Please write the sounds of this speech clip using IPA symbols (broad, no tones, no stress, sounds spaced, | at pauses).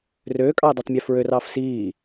r øː kʼ ɑː d a tˤ mʲ ø f ɹ ø r ɑː f s iː